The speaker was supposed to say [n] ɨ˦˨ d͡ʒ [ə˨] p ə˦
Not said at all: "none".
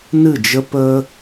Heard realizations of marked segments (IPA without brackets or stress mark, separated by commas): n, ə˦